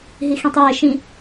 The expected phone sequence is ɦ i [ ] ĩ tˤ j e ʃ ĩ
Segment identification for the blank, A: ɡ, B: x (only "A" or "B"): B